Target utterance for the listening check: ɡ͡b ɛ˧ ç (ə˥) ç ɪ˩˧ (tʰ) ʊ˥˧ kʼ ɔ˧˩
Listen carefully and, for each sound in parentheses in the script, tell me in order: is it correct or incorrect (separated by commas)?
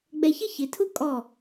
correct, correct